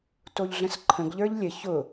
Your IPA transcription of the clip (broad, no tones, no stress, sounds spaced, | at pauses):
t o ʎ ɮ ə̃ s ǃʰ ə̃ ɡ ʎ ə˞ ʎ lʲ ə ç ʊ